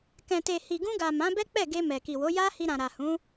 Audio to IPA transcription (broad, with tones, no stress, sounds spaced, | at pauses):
k ɛ̃˨ t e˨ h i˨ ɡ ũ˧ ɡ a˨ m ã˨˦ b ɛ˦ k͡p ɛ˦˨ ɡ e˧ m ɛ˨ k i˨ w o˨˦ j a˧ h i˧ ɾ ã˨ ɾ a˨ h ũ˨˦